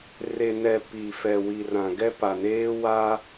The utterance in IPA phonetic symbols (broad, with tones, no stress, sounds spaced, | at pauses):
r e˨ n ɛ˨ p i˨ f ɛ˨ w i˨ r ã˨ ɡ ɛ˦ p a˨ n eː˦ w a˦